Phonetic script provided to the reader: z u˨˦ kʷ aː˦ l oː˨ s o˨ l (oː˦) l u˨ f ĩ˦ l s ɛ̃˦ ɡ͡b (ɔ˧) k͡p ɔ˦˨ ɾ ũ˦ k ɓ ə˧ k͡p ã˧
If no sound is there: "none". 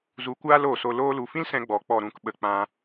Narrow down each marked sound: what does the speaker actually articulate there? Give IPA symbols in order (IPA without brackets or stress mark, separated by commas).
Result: oː˧, ɔ˨